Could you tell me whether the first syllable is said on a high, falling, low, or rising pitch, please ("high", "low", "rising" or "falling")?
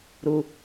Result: low